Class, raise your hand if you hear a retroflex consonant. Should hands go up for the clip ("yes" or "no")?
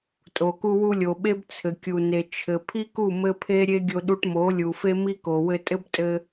yes